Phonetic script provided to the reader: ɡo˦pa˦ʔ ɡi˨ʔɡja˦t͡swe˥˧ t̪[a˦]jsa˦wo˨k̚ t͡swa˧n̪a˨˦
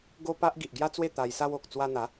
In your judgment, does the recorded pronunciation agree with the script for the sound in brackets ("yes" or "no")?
no